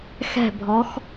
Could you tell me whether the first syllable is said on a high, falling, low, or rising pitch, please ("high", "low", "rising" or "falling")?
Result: falling